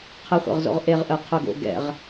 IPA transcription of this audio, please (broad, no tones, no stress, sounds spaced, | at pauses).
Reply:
qʰ ə χʷ ə̰ ʁ z o̰ ʁ ʔ e ʁ ʔ ə qʰ ʊ ɡ o̰ ɡ ɛ̰ ʁ